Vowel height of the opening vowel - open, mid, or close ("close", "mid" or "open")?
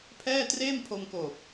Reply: mid